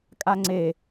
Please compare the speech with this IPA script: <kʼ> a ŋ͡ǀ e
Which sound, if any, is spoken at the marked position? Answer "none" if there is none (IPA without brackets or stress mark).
kʼ